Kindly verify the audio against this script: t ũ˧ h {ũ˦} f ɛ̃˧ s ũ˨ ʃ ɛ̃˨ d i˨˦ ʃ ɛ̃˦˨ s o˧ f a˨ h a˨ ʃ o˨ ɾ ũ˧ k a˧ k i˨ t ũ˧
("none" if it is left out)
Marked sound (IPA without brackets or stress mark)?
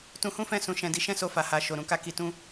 ũ˦